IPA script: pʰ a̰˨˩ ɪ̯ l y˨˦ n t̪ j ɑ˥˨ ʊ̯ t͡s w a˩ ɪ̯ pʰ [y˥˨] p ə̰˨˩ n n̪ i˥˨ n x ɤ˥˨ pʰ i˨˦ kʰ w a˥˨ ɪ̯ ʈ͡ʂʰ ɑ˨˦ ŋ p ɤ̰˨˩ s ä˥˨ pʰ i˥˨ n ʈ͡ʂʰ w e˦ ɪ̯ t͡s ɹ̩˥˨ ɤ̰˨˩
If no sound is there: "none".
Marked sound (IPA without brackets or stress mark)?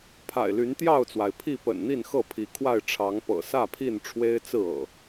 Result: i˥˨